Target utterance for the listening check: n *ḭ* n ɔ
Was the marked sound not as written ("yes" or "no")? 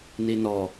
yes